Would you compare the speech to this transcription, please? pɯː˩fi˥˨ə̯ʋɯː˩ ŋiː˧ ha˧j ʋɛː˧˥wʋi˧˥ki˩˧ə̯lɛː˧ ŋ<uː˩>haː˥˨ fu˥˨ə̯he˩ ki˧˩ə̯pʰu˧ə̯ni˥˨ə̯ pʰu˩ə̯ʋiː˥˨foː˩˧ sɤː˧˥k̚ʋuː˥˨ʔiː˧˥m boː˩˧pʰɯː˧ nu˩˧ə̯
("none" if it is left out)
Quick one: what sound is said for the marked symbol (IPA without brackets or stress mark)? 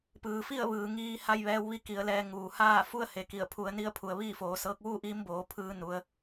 uː˩